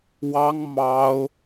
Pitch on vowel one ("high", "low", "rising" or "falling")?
high